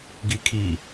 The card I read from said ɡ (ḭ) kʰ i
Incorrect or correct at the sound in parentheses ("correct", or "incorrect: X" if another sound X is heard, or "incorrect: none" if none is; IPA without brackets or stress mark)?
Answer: incorrect: i